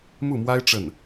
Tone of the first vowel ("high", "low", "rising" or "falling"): falling